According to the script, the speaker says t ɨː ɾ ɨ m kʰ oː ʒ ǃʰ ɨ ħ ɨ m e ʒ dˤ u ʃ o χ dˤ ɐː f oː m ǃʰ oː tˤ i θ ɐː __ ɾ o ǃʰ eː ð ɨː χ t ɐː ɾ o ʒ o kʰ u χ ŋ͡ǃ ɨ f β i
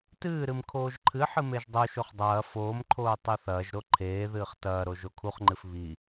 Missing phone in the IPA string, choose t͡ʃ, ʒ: ʒ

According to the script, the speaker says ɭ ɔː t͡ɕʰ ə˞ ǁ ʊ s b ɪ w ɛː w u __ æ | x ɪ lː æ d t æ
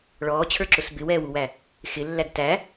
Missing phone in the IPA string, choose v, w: w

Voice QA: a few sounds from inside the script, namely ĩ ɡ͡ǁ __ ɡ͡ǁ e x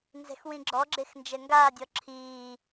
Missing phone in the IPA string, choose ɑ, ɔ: ɔ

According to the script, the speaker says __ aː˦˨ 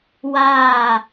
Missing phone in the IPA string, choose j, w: w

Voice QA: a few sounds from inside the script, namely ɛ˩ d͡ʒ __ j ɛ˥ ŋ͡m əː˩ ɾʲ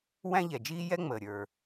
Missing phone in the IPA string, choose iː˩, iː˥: iː˥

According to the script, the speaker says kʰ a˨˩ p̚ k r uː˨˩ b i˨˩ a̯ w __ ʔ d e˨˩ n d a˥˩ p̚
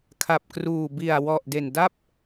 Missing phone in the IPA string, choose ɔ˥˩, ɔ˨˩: ɔ˨˩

